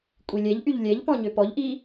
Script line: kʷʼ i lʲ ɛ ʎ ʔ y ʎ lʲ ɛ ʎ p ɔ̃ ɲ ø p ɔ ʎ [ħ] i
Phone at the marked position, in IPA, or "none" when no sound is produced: ʔ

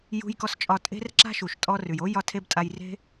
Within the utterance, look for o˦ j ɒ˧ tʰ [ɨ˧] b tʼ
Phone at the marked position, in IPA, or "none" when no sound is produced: e˧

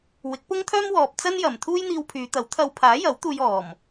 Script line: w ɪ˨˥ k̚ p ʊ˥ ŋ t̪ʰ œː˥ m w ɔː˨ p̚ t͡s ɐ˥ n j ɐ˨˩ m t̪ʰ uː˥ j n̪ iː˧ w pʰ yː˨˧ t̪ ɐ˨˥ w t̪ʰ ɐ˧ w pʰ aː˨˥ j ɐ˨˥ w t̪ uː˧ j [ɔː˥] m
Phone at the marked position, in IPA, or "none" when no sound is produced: ɔː˨˩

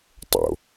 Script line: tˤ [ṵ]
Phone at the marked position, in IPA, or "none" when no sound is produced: o̰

